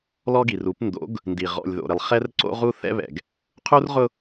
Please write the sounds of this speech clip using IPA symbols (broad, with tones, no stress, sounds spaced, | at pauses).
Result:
l ɔ˦ ɡ i˨ r u˨˦ p n d o̰˨˦ ɡ | n d i˨ ʁ ɔ̰˨ lʲ ð o̰˨ ɾ ɪ˨ lˠ χ ɛ˦ r ǀ o̰˦ ʁ u˦ θ ɛ̰˦ β ɛ̰˨ ɡ | qʰ u˦ r ʁ ʊ˦